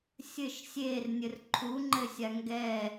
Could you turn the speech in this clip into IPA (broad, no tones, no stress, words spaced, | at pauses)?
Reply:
sʲɘʃ sʲernʲɘr ǃʰuŋ͡ǃɘsʲa ŋɡɛ